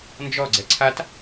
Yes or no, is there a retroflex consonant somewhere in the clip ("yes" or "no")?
no